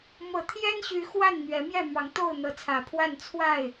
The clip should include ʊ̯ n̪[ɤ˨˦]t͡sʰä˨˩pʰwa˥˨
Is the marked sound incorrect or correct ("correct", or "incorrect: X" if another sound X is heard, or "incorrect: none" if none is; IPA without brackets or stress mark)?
correct